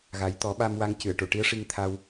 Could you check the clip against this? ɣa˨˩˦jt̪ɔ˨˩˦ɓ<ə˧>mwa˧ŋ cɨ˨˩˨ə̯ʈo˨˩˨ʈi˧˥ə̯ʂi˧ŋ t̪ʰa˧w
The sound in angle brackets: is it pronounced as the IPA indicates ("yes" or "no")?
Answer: no